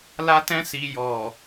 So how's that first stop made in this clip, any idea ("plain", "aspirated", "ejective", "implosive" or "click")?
plain